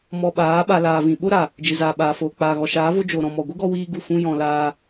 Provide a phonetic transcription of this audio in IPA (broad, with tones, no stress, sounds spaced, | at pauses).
m ɔ˧ ɓ aː˨˦ ɓ a˧ l aː˨ v ĩ˨ ɓ o˦ ɾ a˨ | d͡ʒ ɨ˨ z aː˨ ɓ aː˨ f oː˨ k͡p aː˨ ɣ ɔ˨ ʃ aː˨˦ v o˦ d͡ʒ o˨ ɾ ɔ̃˨ m ɔ˨ ɡʷ ɨ˦ ɡ ɔ˧ w iː˧ ɡ u˦˨ f ũ˦ j ɔ̃˨ l aː˧